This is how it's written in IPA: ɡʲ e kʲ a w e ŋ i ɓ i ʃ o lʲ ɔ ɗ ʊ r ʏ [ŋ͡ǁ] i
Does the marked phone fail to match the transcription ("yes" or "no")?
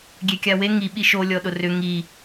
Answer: yes